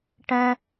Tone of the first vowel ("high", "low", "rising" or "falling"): high